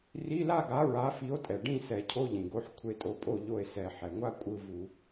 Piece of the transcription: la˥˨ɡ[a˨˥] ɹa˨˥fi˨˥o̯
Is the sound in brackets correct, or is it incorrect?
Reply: correct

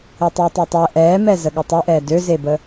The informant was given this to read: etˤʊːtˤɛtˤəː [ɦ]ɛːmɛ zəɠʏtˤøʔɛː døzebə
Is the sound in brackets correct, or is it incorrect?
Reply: incorrect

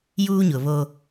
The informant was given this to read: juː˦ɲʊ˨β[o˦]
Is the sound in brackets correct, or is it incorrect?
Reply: correct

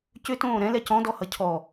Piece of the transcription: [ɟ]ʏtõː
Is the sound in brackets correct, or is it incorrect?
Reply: incorrect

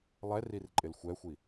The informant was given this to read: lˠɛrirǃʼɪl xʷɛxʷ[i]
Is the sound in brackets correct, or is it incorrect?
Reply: correct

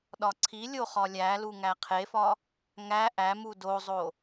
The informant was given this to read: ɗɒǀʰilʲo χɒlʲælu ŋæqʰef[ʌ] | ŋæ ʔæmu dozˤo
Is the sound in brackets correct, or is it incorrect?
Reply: incorrect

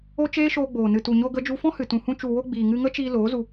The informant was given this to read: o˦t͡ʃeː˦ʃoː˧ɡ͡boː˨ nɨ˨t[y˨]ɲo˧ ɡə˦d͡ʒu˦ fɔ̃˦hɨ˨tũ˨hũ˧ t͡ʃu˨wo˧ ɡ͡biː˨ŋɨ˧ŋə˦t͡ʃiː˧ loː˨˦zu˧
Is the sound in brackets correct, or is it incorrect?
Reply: incorrect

